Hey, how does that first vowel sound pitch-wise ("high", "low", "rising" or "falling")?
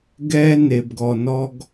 high